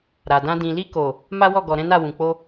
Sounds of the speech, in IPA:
ɾ a˨ d ã˧ d ĩ˨ l i˧ k o˨ | m a˦ w ɔ˦˨ ɡ ɔ˨ ɾ ɛ̃˨˦ n a˦˨ w ũ˨ k͡p o˧

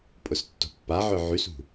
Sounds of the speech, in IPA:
pʼ ʊ s tː o̤ pː a ʕ œ ʕ y s ṳ

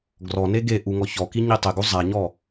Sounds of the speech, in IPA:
ɡ r ɔ n e ɡ e ʔ u ŋ ɔ ç ɔ k i ɲ i tˤ ɪ ɡ u zˤ a ɲ ɔ

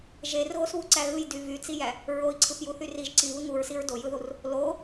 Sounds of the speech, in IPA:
ʒ e r ɣ o s β u ǀ æ ɣ ɯ j d y v y t͡s i j æ | ɹ o i̯ ǀʰ ɯ p j u θ y r i ʒ ǀ i β ɯ ŋ u ɹ s i ɹ d o j ɯ ð u r | l o

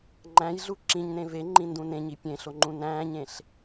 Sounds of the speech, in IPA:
ŋ͡ǃ æ̃ j ɮ u ǁ ĩ ɲ n ẽ v e ŋ͡ǃ ĩ n d ũ n ẽ ɲ i pʲ ẽ ɬ o ŋ͡ǃ ũ n æ̃ː ɲ ẽ ɬ

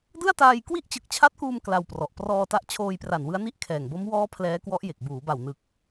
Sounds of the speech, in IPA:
d ɯ˥˩ a̯ t aː˧ j k w i˥˩ ʔ t͡ɕ ɯ˨˩ k̚ t͡ɕʰ a˦˥ t̚ k uː˧ m k l a˧ w p r ɔ˨˩ ʔ p r ɔː˧ t a˦˥ ʔ t͡ɕʰ oː˧ j p r a˨˩ n w ɯ˦˥ a̯ n i˥˩ ʔ kʰ ɛː˨˩ ŋ b o˦˥ m w ɔː˦˥ pʰ l ɛː˦˥ k w ɔ˦˥ ʔ j e˨˩ k̚ b uː˩˦ b a˨˩ w n ɯ˨˩ k̚

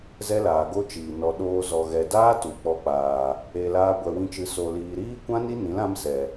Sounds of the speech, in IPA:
z ɛ˦ l aː˨ ɡ o˦ t͡ʃ iː˨ n ɔ˨ ɗ oː˧ z ɔ˨ ɣ ɛ˨ d aː˦ t u˨ k͡p ɔ˧ k͡p aː˨ | e˧ l aː˦ ɡʷ ɛ˧ w ĩ˦ t͡ʃ ɨ˧ s o˨ l iː˨ ɾ iː˦ kʷ ã˦ n i˦ n ĩ˨˦ l ã˦ m s ɛ˨

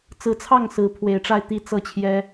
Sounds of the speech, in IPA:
t͡s ɹ̩˨˦ t͡sʰ ɑ˥˨ ŋ s ɹ̩˨˦ pʰ w e˨˩ ɪ̯ ʈ͡ʂ a˥˨ ɪ̯ t̪ i˥˨ t͡s ɤ˥˨ t͡ɕʰ j ɛ˦

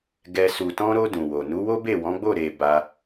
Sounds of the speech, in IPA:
ɡ ɛ˨ s u˨ t ɔ̃˧ ɾ o˧ d ũ˨ w o˨ n u˨˦ w o˦ b e˦˨ w ɔ̃˨˦ ɡ͡b o˦˨ ɾ e˧ b a˧

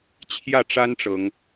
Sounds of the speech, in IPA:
t͡ɕʰ j ä˥˨ ʈ͡ʂ a˦ n ʈ͡ʂ ɤ˨˦ ŋ

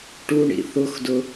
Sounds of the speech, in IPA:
ʈ u ɳ ḭ θ ʊ x d ʊ

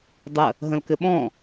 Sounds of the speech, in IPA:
dˤ ə | ɦ ə̃ l k ɘ ɓ ɔ̃

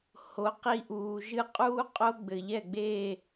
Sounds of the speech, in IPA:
h o˧ q i˥˧ ʔ uː˧ ʒ ɨ˥˧ qʼ uː˥ qʼ o˥ ɡ͡b ɘ˧ ʎ ɛ˥˧ ɡ͡b e˥˧

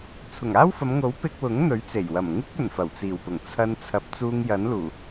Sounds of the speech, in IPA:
t͡sʰ ʊ˨˩ ŋ aː˥ w f ɐ˨˧ m ŋ o˨˥ w p ɪ˧ k̚ w ʊ˨˥ ŋ n̪ ɵ˨˥ ɥ t͡s e˨˩ j w ɐ˨˩ m ŋ ɪ˥ k̚ ɵ˨˩ n f ɐ˨˩ w t͡s iː˨˩ w p ʊ˨˩ ŋ t͡sʰ ɐ˧ n t͡sʰ ɐ˨˥ p̚ t͡s uː˧ ŋ j ɐ˨˥ n l uː˨˩

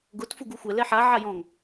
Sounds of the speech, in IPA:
ɡ ʊ t f u ɡ u xʷ ɛ l ɛ ħ a ʕ a j ɔ̃ ŋ

